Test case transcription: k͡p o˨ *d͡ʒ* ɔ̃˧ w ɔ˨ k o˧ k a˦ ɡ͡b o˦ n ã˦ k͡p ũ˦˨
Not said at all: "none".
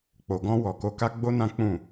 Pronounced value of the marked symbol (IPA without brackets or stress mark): ɡ